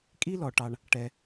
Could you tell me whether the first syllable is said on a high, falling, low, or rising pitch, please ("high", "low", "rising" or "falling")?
high